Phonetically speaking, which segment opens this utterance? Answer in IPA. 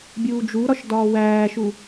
bʲ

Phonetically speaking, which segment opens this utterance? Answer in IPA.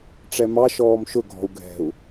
ʈ͡ʂ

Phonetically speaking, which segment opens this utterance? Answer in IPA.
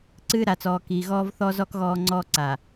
ǀ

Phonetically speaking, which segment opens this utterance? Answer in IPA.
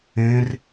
ẽ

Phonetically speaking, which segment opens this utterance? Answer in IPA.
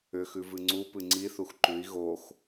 ʏ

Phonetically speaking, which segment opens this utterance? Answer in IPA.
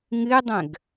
ŋ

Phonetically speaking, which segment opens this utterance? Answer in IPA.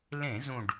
l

